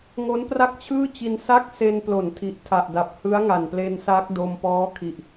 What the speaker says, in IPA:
ŋ o˦˥ n p r a˥˩ k̚ t͡ɕʰ ɯː˥˩ t͡ɕ i˧ n s a˥˩ k̚ s e˧ n p l o˩˦ n tʰ i˨˩ ʔ tʰ a˨˩ ʔ d a˨˩ p̚ h ɯ˦˥ a̯ ŋ a˨˩ n p l e˧ n s a˦˥ k̚ d o˧ m p ɔː˦˥ kʰ i˨˩ ʔ

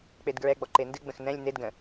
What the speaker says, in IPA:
k͡p e d ɡ ɹ ɛ ɡ͡b ɔ ǃ e n d ɨ ɡ͡b ə̃ x n ɛ̃ lʲ n e d ɡ ə̃

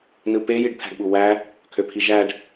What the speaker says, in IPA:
n ɯ p e j i ɖ t̪ʰ æ̤ ɖ ɓ u w æ | kʰ ø pʰ i ʒ æ ɖ

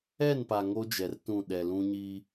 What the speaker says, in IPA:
ɛ˦˨ n p a˨ ŋ o˦ d͡ʒ ɛ˨ r t ũ˦˨ ɗ ɛ˨ l ũ˦ ɲ iː˦

